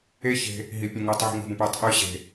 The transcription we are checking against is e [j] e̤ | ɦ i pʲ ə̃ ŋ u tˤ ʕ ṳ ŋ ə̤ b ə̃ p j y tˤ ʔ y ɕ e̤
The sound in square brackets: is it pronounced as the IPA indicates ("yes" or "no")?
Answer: no